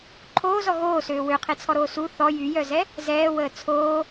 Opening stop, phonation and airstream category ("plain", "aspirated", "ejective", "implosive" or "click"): click